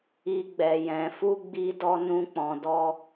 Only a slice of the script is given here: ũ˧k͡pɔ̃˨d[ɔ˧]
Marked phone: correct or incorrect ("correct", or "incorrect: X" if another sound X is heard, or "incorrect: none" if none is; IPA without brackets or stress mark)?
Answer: correct